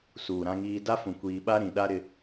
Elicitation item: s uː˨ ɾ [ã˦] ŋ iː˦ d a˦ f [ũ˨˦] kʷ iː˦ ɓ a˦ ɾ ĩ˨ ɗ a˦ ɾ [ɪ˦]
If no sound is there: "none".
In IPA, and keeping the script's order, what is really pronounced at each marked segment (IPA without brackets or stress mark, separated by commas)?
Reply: ã˦, ũ˨, ɪ˦